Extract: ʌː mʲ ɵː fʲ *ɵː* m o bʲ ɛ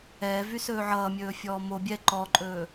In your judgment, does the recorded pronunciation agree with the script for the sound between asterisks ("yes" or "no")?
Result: no